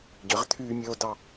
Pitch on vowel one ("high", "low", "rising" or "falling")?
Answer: rising